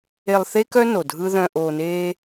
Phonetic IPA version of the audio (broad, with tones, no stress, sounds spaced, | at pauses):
e˧ lˠ θ e˦ k œ˦ n o˨ dʱ ɯ˦ ð œ̃˧ ʔ oː˧ n eː˦